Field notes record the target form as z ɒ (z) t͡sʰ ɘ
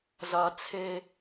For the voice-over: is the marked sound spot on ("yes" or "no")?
no